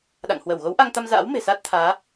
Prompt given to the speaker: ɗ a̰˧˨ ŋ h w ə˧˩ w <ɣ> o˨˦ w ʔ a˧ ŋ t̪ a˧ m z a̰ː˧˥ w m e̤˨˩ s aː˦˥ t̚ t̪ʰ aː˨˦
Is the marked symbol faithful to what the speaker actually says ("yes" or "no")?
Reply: yes